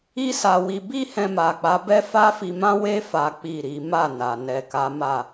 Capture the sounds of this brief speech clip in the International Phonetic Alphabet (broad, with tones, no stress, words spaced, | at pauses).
i˦sa˧wi˧ bi˦hɛ̃˧ma˨k͡pa˨˦ bɛ˦fa˦fi˧ mã˦we˦ fa˦k͡pi˦˨ɾi˨˦ ma˦˨na˨ nɛ˨ka˨˦ma˦˨